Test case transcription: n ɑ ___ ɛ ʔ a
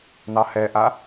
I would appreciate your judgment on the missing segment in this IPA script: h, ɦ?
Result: h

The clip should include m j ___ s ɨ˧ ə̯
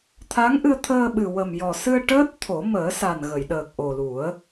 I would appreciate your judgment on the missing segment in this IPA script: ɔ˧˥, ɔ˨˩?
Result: ɔ˨˩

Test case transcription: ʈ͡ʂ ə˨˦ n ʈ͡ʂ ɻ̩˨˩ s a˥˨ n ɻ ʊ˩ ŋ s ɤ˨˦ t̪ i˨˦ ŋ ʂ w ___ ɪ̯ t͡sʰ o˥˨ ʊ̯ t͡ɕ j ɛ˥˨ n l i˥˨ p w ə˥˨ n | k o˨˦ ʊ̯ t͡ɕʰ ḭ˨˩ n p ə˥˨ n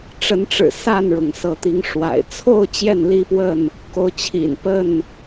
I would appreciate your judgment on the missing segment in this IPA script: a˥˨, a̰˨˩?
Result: a̰˨˩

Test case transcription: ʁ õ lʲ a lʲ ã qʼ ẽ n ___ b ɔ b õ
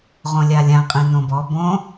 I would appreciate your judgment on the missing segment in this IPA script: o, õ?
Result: õ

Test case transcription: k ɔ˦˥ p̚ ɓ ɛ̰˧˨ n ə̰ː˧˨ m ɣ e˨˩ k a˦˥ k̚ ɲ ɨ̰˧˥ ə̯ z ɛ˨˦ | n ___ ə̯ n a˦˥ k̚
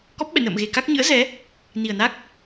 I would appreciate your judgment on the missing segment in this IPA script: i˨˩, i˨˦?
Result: i˨˩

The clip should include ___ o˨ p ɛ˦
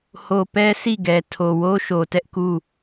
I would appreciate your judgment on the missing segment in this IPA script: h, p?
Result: h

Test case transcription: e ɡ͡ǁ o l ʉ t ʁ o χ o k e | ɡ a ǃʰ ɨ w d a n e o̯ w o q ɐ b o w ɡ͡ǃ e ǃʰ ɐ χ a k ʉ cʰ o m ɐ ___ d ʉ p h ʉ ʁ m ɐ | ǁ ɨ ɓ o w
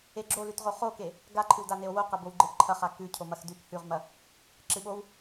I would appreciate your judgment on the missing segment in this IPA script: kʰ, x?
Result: x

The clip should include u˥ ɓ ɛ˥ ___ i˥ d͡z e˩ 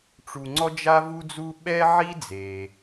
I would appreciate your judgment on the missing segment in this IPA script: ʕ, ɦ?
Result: ʕ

